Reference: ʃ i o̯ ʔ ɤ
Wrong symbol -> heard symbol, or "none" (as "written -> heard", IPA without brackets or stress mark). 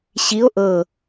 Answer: ʃ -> ɕ